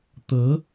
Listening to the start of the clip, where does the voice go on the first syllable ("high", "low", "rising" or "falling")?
rising